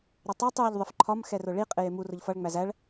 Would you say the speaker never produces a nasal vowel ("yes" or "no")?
yes